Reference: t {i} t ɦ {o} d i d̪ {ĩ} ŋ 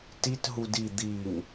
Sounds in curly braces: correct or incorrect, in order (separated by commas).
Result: correct, incorrect, incorrect